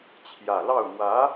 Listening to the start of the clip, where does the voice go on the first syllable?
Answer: low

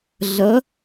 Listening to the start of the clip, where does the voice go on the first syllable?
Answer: rising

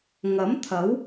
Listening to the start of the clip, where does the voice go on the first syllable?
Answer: rising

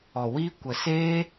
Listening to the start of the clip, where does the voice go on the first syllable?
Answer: low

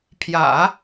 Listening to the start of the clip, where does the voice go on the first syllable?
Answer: low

